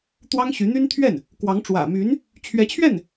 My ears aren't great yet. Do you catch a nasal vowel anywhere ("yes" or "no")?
no